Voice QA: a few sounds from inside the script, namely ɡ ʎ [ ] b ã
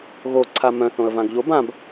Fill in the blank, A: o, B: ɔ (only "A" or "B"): A